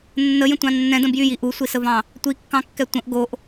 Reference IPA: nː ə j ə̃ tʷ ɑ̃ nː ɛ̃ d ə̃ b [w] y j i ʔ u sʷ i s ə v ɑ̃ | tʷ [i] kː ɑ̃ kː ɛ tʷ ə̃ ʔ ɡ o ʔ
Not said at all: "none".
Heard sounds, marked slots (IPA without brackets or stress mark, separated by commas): j, i